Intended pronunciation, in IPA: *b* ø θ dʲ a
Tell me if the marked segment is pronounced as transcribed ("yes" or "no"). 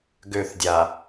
no